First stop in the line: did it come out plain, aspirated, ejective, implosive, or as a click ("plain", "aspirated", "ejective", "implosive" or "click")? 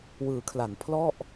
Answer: aspirated